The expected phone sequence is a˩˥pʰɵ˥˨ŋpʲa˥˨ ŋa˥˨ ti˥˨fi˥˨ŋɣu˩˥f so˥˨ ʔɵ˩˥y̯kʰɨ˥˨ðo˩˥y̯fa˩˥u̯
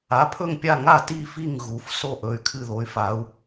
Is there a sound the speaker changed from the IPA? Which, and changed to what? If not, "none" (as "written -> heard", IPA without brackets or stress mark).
none